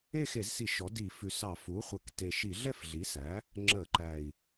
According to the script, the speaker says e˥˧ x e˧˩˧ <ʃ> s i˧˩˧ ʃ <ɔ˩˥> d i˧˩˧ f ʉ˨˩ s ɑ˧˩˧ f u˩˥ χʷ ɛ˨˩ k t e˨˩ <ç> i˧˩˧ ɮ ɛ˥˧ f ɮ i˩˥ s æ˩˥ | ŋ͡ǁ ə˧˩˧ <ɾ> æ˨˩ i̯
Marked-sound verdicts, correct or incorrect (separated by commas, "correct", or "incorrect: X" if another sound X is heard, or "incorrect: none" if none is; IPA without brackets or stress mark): incorrect: z, correct, incorrect: ʃ, incorrect: ǃ